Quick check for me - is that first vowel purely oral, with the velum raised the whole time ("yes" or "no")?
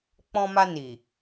no